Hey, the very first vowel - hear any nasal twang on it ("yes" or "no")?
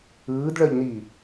no